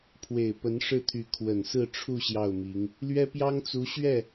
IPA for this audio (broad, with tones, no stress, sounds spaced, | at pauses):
pʰ w e˨˩ ɪ̯ p ə˧˥ n ʂ ɻ̩˥˩ t̪ʰ y˧˥ kʰ w ə˨˩ n s ɹ̩˥˧ ʈ͡ʂʰ u˥˧ ɕ j ɑ˥˩ ʊ̯ m i˧˥ ŋ | l ɥ ɛ˥ p j ɑ˥ ŋ t͡s u˧˥ ɕ ɥ ɛ˥˩